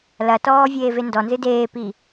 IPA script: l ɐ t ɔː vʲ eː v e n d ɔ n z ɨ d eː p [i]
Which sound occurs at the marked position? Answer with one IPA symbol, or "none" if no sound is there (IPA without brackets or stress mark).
i